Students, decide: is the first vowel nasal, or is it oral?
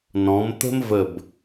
nasal